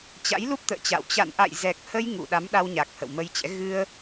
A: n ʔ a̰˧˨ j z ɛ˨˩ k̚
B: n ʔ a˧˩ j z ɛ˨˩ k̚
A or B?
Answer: A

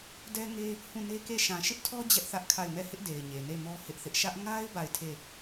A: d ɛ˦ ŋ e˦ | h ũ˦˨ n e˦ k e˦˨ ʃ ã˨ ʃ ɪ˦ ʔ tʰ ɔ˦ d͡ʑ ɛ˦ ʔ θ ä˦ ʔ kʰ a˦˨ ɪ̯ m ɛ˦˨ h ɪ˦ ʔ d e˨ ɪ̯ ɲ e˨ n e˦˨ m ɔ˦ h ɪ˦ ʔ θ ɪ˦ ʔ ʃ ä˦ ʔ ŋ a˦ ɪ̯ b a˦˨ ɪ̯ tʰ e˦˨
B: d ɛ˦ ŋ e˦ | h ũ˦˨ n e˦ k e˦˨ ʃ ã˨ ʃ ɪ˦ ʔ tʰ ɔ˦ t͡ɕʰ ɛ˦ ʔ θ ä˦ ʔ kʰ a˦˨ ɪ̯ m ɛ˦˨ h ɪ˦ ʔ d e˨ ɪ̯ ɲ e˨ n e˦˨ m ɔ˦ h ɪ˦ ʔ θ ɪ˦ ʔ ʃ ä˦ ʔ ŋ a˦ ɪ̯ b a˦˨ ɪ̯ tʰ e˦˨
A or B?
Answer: A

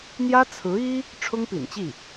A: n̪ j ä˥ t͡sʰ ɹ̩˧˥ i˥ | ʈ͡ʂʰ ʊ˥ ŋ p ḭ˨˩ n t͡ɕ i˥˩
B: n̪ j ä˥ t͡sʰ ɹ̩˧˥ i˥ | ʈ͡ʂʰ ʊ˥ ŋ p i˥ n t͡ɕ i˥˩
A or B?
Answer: A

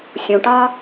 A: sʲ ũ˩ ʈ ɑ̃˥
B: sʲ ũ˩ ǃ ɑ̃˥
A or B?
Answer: A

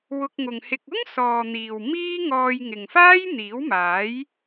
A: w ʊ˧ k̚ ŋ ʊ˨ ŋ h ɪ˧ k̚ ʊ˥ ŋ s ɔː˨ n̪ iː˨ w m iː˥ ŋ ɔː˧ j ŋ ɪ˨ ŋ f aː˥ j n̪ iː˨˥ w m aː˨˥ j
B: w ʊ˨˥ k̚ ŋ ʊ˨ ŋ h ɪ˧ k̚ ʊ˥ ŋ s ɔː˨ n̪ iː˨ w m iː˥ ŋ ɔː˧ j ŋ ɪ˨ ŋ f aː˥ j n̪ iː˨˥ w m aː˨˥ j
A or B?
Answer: A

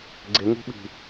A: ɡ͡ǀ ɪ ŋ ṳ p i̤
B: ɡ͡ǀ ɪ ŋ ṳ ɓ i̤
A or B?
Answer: B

